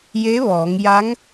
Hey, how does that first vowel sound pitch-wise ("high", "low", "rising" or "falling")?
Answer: rising